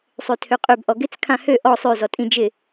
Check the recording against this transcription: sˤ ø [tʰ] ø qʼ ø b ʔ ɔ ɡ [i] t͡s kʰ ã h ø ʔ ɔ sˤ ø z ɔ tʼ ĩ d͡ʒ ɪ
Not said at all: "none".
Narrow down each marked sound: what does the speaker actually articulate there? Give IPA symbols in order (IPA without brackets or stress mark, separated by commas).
tʰ, ɪ